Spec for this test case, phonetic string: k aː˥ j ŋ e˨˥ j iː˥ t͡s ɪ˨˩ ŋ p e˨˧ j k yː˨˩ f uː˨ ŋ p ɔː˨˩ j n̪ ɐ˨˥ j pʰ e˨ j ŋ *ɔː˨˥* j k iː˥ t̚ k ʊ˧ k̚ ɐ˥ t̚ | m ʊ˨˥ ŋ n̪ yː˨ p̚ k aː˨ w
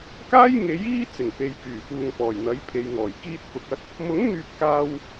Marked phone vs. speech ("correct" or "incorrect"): incorrect